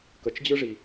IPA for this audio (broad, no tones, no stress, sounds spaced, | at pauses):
k ə t͡ʃ d͡ʑ ɯ ʐ i